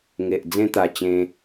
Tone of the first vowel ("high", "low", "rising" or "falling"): low